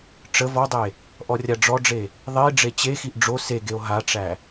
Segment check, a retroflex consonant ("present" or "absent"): present